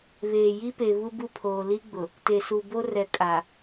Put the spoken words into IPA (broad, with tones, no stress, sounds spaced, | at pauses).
β eː˨ j i˦ p e˨ β u˦ b u˦ pʰ oː˨ l i˦ ɡ͡b ʊ˨ | t e˨ s u˨ b o˦ r ɛ˨ kʼ a˨